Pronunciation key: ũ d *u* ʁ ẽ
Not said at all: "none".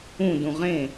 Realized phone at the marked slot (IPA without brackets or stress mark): ũ